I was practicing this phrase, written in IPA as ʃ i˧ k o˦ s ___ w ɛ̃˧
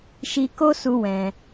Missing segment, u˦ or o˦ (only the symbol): u˦